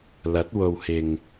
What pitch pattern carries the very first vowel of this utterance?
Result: rising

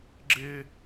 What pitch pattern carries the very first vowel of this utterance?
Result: high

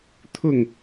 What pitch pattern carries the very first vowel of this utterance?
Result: falling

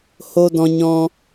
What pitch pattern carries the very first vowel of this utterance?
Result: high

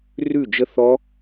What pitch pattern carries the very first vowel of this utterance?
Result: falling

